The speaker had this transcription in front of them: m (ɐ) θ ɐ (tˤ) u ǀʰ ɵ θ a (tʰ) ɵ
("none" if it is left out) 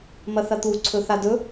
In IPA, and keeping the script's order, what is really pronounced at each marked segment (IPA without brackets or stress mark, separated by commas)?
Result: ɐ, t̪, d